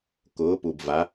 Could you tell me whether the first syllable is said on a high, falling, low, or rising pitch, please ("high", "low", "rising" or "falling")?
rising